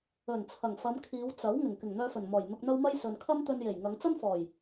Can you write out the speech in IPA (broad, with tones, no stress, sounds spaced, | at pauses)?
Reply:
ɵ˨˩ n t͡sʰ ɐ˨˩ ŋ f ɐ˨˧ m kʰ iː˨˧ w t͡s ɐ˨˥ w ŋ ɪ˨˩ ŋ k ɪ˨˩ ŋ n̪ œː˧ f ɵ˨˩ n m ɔː˨˩ j n̪ ʊ˧ k̚ n̪ ɐ˥ w m ɐ˥ j s ɵ˨ n kʰ ɐ˥ m t̪ ɵ˧ n j e˨˩ j ŋ ɐ˨˧ ŋ t͡s ɐ˥ n f ɔː˨˩ j